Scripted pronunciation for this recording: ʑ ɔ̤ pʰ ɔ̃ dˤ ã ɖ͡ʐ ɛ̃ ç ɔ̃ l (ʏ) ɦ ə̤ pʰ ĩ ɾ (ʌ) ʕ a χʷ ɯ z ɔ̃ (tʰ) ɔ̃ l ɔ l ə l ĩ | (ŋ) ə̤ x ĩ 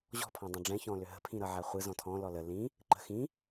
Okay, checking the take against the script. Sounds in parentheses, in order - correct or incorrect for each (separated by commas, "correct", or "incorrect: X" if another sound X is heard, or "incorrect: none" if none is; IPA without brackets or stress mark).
correct, correct, correct, incorrect: ǃ